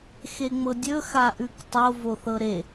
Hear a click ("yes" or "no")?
no